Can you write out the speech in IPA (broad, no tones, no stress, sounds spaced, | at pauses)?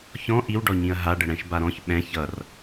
ç ɔ̃ ʔ i w ɖ ɔ ɲ ĩ ɐ̯ ɦ a ɖ ə ɽ ɛ̃ ʃ b a ɾ ɔ̃ ç ɓ ɛ̃ ç ʌ r